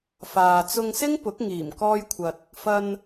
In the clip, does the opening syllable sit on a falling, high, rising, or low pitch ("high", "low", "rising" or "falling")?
low